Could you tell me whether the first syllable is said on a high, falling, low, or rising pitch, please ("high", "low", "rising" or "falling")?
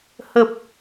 low